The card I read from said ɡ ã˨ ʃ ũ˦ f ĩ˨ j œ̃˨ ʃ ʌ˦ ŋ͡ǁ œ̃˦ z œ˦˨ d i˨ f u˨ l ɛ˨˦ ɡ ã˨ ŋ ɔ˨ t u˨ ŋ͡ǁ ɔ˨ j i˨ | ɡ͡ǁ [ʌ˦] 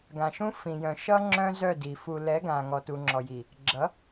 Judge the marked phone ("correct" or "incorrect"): incorrect